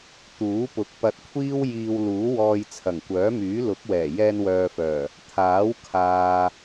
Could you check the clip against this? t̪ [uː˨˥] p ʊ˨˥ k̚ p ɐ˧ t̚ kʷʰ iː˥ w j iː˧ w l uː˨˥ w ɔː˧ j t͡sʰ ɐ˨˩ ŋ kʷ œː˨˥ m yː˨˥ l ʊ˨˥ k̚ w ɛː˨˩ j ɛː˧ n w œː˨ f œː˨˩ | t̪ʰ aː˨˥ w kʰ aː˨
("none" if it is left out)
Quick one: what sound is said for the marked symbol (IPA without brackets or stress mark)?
uː˨˥